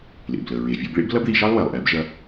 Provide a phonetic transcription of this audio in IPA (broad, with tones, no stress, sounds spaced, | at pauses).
l ḛ˩ b l ə˩ ɹ e˩ vʲ o˧ b ɭ ḛ˥ b l ɐ˥ b ð i˧ ʃ ɑ˥ lˠ w ɛ˩ lˠ ʔ ɛ˩˧ b ʒ ɐ˧